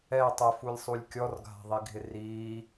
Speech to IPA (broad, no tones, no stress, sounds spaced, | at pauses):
ɛ tˤ ɛ f u lʲ sˤ u lʲ kʲ ɔ r ɡʱ a̤ ðˤ i ɡʱ ɪ r iː